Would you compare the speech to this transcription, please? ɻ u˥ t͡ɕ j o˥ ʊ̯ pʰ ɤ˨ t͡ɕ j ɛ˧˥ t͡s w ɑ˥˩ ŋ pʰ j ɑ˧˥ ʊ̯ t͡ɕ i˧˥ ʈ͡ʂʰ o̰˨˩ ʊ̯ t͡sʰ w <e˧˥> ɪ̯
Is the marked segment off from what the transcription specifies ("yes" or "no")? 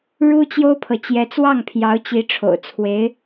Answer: no